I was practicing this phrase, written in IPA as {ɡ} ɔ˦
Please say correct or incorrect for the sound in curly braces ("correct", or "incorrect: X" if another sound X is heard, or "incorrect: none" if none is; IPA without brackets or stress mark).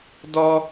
incorrect: d